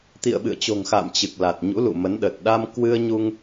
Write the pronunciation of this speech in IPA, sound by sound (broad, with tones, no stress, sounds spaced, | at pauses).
t̪ ḭ˧˨ ə̯ ɓ ɨ̰˧˨ ə̯ t͡ɕ o̤˨˩ ŋ x a̰ː˧˨ m t͡ɕ ɨ˨˩ k̚ l a˨˩ t̚ ɲ ṵ˧˥ l ṵ˧˨ m ə˨˦ n ɗ ə˨˩ t̚ ɗ a˧ m k w ɨ˧ ə̯ ɲ u˧ ŋ